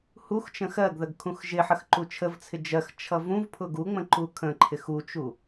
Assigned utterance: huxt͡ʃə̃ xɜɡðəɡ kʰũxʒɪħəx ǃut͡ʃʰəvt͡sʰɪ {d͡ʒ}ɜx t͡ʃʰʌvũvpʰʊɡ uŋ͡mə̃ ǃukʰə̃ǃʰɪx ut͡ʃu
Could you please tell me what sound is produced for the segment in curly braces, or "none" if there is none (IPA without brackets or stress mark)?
d͡ʒ